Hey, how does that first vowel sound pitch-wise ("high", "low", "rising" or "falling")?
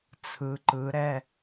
rising